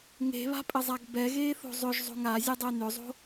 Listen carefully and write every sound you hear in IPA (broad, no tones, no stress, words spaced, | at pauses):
ŋe̤βa̤pʼɘzˤaɡ bɛɣeːθo̤ zˤʏʒzˤo̤ŋ azʲɘdˤe nʏzˤo̤